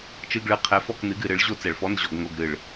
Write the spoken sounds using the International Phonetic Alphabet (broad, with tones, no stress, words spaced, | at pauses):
t͡ʃɨ˧˥˧ɡɭɨ˧˥ qʰɛ˧˥fɔ˥˧knɨ˧˥ɡ ɨ˧˩˧ɾɨ˩˥ɭ ʑo˥˧ t͡sɛ˧˩˧ɭfɔ˧˥˧nʑɔ˧˩˧ɡ ŋo˧˥˧ɡɾɨ˧˩ɭ